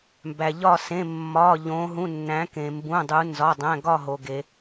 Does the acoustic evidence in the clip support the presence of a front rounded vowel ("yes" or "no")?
no